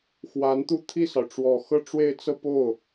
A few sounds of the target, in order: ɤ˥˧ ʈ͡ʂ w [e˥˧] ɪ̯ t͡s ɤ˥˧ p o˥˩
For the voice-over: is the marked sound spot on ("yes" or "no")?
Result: yes